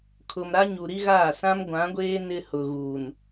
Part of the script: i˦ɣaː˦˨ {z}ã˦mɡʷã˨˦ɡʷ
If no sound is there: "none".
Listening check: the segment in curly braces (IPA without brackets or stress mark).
s